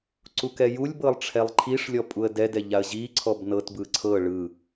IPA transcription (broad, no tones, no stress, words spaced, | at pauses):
ǀukɛjulʲbɤlˠ ʈ͡ʂʰɛlˠǃʰiʂlʲɔ pʼuə̯dɛdɛ ʎaə̯ʑiǀʰɔb nɤtbɯ ǀʰɤ ɭɯ